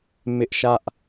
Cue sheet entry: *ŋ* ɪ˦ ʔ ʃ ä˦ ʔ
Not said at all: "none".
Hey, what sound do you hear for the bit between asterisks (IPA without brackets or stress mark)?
m